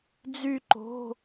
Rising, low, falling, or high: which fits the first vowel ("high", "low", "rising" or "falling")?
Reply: falling